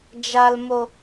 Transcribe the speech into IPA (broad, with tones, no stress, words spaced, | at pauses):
d͡ʒa˨lmo˨